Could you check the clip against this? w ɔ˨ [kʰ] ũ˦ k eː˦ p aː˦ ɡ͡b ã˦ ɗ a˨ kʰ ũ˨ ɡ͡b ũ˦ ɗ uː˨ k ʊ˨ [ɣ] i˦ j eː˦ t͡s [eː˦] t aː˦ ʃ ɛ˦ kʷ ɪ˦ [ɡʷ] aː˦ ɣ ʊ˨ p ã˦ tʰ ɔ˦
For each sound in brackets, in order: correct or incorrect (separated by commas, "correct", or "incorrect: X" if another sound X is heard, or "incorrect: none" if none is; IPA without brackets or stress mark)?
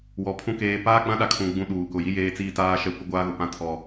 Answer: incorrect: pʰ, incorrect: j, incorrect: iː˦, correct